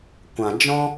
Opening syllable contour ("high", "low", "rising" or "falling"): low